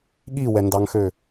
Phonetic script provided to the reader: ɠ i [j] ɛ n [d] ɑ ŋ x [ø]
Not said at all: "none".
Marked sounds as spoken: w, d, ø

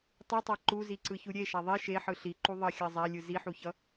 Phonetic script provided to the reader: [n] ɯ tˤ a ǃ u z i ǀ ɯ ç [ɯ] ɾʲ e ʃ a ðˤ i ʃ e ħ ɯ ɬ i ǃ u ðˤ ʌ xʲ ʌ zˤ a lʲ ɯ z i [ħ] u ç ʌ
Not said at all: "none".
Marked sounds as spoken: tˤ, u, ħ

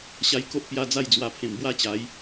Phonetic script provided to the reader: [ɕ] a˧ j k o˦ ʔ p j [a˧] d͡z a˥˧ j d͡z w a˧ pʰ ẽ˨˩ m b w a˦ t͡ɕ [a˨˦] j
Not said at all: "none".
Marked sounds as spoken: ɕ, a˧, a˨˦

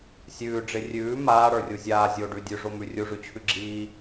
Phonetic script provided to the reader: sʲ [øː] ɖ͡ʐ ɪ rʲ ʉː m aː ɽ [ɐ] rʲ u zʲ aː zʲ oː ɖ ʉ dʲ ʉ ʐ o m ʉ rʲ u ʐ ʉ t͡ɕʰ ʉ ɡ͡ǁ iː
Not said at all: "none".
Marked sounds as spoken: ʉː, ə˞

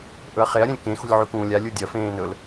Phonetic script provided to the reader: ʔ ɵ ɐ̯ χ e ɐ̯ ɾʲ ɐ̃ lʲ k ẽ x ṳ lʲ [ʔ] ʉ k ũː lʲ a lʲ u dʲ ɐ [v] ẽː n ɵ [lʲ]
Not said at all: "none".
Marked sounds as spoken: ʕ, f, l

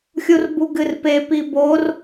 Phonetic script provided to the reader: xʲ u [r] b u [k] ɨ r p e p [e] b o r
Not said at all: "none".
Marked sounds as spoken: r, ɡ, i

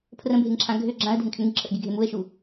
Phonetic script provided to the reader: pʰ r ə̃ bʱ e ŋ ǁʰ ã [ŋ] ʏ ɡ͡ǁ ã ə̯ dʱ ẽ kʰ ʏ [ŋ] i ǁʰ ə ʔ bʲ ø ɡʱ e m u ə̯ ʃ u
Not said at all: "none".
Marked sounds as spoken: ɡʱ, ŋ

